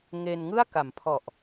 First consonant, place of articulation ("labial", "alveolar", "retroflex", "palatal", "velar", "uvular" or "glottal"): velar